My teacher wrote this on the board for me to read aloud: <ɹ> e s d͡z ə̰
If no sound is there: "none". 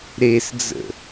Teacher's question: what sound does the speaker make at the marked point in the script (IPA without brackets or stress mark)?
ɾ